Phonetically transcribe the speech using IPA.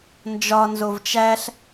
n d͡ʒ ɒ n z o v t͡ʃ æ ɬ

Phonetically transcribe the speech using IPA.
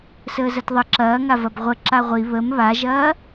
s əː z ɐ t ðˤ ə ǁ ɐː ŋ a v ɐ b ʁʷ ə ǁ a ʁʷ i β ə m β a ʒ ɐː

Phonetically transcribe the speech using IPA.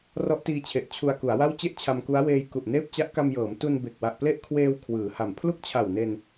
r ɔ˦˥ ʔ t iː˧ t͡ɕʰ e˨˩ ʔ t͡ɕʰ u˧ a̯ k u˩˦ a̯ w a˥˩ w t͡ɕ e˥˩ ʔ t͡ɕʰ a˧ m k u˦˥ a̯ w eː˧ j k u˨˩ ʔ n eː˥˩ p̚ t͡ɕ a˦˥ ʔ k a˧ m j ɤː˩˦ m t u˧ n b e˨˩ k̚ w a˨˩ ʔ p l e˥˩ ʔ kʰ w eː˧ w kʰ w ɯː˩˦ h a˨˩ m pʰ l u˥˩ k̚ t͡ɕʰ a˨˩ w n e˧ n

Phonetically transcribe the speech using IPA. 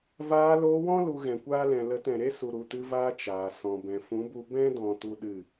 v aː˧ l oː˧ w ɔ̃˦ l u˧ ɣ ɛ̃˨ kʷ aː˦ l ɛ̃˨ l ə˨˦ t ɛ̃˨ ɾ e˦ s u˨ ɾ u˨ t ɨ˧ v aː˧ t͡ʃ aː˨ s ɔ̃˨ b ɛ̃˨ f ũ˨˦ b u˧ b ɛ̃˦ d ɔ̃˨ t u˦ ɗ ɨ˦˨

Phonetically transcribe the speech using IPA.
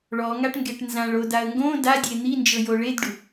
ɭ ɔ ŋ a ʈ ŋ ɡ e ʈ n z ã ɭ o d a ə̯ ŋ ɡ õ d a dʲ e n̪ i n d͡ʒ ɤ j o ɭ e d ɖ u

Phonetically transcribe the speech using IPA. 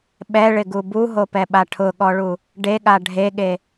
ɓ ɛ ɭ ɪ ɡ u b u ɦ o p ɛ ɓ a ʈʰ ʊ ɠ ɔ ɭ u | ɖ e ɠ a ɖʱ e ɠ e

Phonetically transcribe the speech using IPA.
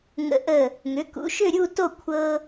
ŋ ə̰˧˩˧ ʔ ə˦˨ | ŋ ʏ˩˥ k ṵ˩˥ ʃ ʏ˦˨ ɾʲ u˦˨ t o˦˨ kʷʰ ɤ˦

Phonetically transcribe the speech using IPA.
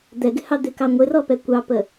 d̪ ɛ ɡ ɪ h ɑ d̪ ɪ k ɑ ŋʷ ɪ r ɔ p ɛ kʷ ɑ p ə

